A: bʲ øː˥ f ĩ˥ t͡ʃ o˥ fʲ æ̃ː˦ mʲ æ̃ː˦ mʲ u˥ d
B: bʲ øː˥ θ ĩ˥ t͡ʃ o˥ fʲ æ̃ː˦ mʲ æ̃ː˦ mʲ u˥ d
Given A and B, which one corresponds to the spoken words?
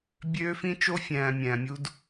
A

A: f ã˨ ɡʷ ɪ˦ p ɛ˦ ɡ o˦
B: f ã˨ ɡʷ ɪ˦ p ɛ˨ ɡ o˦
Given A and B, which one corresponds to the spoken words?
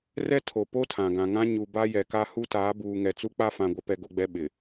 A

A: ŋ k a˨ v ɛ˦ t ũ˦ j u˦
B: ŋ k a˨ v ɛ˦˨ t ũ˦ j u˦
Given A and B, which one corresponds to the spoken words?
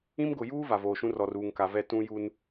B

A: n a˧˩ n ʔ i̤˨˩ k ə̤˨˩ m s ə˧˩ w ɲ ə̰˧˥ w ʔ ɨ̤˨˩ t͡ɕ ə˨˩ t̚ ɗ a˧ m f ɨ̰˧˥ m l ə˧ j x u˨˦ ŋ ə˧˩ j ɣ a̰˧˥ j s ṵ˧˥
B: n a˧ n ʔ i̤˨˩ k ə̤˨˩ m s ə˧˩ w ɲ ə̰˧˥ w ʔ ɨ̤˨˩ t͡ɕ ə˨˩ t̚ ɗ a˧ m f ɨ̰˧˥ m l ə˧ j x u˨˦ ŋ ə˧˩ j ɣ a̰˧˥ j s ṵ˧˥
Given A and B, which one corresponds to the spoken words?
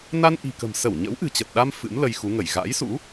B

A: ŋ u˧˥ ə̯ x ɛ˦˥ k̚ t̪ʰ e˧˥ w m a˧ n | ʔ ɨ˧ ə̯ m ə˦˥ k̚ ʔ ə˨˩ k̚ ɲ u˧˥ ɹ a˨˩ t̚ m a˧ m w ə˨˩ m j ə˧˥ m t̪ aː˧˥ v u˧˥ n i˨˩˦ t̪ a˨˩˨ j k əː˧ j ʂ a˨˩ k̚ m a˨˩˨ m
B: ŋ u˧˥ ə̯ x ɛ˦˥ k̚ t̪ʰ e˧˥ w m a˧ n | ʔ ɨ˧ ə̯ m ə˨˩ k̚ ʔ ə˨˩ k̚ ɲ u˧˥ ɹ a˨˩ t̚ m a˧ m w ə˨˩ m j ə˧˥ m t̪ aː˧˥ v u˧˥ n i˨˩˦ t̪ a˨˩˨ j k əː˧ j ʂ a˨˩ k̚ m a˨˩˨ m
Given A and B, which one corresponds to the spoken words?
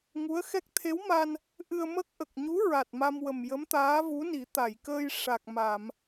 A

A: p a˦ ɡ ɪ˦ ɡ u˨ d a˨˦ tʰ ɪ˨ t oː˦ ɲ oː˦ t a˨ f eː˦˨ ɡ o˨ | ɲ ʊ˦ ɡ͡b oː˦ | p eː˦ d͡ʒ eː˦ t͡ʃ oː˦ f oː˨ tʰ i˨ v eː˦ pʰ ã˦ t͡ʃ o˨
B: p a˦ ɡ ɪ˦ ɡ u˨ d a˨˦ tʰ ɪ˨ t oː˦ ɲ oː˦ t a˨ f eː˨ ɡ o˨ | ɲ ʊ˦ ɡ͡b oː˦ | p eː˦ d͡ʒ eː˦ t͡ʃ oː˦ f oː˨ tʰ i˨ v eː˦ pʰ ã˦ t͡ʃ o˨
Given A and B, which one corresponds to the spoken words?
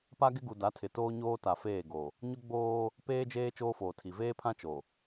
A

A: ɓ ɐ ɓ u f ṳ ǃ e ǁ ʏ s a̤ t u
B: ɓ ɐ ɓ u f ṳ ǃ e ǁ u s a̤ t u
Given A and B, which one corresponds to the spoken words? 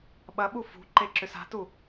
A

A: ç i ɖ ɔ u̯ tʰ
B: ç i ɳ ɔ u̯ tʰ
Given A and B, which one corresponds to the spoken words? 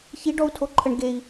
A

